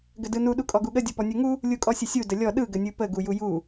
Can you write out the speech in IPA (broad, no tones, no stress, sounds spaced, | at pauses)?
ɡ ə d ɯ n u ɗ u kʼ ɔ ɡ u ɠ ə dʲ ɔ p ɔ nʲ u ŋ u | lʲ u kʼ ɔ sʲ ə sʲ u d ə lʲ ɔ ɗ ɯ ɡ ə nʲ ɯ p ə ɡ u j u j u